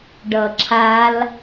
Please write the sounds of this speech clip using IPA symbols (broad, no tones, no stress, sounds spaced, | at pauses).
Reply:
ɖ ʌ ǁʰ a l